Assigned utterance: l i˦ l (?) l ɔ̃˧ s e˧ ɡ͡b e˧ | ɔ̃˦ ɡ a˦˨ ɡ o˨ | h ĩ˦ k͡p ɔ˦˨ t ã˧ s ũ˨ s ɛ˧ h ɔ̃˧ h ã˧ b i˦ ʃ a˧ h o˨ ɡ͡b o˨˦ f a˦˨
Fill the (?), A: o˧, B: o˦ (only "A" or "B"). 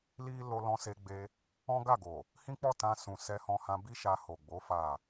A